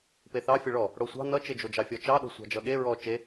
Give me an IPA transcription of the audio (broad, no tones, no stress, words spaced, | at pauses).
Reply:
peθɑ fʲʌɭɔ | ɽosʷɑ̤ nʌt͡ʃed͡ʒod͡ʒɑ fʲɔt͡ʃɑɗo̤ sʷɑ̤d͡ʒʌɠe ɹɔ t͡ʃe